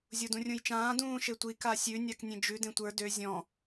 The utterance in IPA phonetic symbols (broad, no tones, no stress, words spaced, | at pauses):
zʲodũrʲũjt͡ʃãː dũːʃetʷi kasʲʉ nʲaknʲẽd͡ʒʉ dẽtʷə˞ dø zʲɔ̃